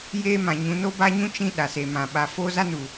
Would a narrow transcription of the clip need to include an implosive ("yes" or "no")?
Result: yes